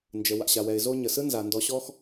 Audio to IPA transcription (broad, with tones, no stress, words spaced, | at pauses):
nd͡ʒə˩ wa̰˩ɕa˩wɛ˩ɪ̯ zo˥ ɲə˩sɯ˥nza˩ ndɔ˧ɕɔ˥x